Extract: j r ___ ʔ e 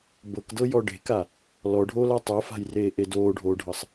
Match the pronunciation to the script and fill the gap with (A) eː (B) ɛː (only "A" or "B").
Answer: A